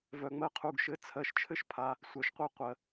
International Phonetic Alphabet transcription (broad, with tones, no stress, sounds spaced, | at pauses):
v œ˩ ŋ͡m ɜ˦ qʰ u˩˧˩ ɡ ʃ ɘ˩˥ t͡sʰ ɜ˩˧˩ ʃ t͡ʃʰ ɘ˦ ʃ pʰ a˩˧˩ | sʷ œ˩ ʃ qʷ ɛ˦˨ qʷ ɜ˩